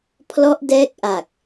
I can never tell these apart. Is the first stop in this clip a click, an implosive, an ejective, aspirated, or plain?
aspirated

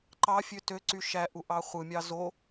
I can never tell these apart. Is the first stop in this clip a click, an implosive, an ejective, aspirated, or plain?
click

